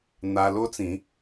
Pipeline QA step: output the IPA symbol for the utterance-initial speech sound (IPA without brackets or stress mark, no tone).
n̪